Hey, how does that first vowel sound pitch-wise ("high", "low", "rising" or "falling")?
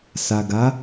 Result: low